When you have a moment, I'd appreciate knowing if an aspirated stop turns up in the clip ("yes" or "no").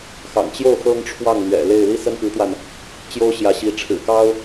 yes